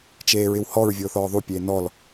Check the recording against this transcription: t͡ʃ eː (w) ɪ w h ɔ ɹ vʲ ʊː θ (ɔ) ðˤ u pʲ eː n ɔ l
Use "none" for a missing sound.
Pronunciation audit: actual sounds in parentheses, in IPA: ɹ, ɔː

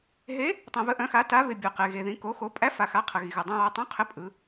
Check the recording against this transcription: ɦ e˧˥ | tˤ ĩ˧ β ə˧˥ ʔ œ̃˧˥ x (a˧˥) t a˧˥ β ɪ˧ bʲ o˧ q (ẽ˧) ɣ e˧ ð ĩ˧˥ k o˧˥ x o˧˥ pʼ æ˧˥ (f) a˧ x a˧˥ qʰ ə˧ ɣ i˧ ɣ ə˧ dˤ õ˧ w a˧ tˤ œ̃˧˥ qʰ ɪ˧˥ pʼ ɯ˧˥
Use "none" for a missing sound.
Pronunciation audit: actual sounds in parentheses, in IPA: a˧˥, e˧, f

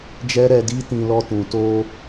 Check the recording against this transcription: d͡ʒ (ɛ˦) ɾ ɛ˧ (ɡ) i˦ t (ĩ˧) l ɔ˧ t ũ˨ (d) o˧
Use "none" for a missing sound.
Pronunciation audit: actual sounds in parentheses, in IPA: ɛ˦, d, ĩ˧, t

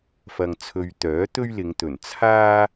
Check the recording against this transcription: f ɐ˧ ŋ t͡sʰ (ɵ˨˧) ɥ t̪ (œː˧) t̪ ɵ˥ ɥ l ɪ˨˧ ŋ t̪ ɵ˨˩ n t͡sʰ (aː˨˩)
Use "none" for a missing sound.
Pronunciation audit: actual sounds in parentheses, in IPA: ɵ˧, œː˨˥, aː˥

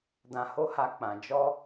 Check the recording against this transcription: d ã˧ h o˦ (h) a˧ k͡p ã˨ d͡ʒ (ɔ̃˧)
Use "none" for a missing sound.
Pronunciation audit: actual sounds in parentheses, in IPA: h, ɔ˧

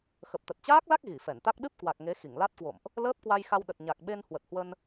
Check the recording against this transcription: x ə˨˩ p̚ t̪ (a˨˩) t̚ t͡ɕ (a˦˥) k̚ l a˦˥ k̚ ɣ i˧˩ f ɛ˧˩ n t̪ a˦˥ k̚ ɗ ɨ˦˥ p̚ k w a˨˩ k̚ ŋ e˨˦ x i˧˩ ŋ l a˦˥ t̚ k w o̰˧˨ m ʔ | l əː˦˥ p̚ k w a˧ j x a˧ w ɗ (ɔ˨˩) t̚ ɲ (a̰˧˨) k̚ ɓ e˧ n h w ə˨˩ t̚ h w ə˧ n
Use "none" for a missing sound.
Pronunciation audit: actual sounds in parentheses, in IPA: ə˨˩, aː˦˥, ə˨˩, a˨˩

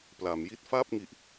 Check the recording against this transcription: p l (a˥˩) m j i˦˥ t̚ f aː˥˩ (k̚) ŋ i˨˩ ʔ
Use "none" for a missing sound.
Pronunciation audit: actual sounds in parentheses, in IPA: a˩˦, p̚

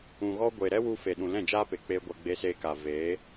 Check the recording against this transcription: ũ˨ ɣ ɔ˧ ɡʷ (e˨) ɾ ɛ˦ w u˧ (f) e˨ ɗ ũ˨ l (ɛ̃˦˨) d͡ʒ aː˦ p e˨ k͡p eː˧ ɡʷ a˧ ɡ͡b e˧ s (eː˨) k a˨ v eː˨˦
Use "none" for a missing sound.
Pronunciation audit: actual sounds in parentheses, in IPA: e˨, f, ɛ̃˦˨, eː˧

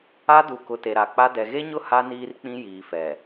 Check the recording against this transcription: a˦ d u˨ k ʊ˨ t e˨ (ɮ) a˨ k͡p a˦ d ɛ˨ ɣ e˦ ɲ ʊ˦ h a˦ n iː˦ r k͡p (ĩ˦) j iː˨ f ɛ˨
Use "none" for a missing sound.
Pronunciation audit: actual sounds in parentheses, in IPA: ɾ, ĩ˦

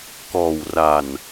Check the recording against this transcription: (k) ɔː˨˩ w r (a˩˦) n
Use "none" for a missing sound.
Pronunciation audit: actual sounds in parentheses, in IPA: k, a˨˩

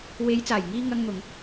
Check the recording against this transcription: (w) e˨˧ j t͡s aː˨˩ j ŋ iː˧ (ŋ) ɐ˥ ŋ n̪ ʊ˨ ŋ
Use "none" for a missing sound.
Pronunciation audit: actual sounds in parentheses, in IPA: w, ŋ

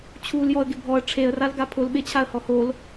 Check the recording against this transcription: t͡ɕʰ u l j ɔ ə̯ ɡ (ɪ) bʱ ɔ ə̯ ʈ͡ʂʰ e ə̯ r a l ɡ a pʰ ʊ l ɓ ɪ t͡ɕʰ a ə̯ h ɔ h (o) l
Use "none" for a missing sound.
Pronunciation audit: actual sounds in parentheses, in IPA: ɪ, o

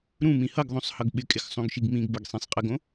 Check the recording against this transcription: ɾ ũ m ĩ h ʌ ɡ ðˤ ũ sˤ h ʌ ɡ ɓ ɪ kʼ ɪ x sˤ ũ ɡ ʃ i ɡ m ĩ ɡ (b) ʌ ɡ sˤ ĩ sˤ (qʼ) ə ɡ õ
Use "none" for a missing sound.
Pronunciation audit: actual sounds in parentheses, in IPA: b, qʼ

